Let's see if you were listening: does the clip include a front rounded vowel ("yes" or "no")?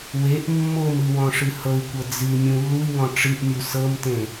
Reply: no